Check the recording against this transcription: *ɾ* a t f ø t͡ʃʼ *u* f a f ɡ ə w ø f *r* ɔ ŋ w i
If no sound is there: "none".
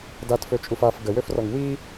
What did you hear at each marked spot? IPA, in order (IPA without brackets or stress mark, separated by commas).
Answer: d, u, r